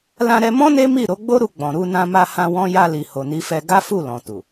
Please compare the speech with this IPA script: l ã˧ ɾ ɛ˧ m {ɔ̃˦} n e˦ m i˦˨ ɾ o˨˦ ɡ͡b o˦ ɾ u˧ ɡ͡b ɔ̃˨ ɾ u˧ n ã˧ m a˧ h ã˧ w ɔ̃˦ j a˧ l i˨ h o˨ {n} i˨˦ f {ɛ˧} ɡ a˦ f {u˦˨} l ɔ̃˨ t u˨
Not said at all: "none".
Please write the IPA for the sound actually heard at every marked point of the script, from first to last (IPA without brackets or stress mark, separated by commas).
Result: ɔ̃˦, n, ɛ˧, u˦˨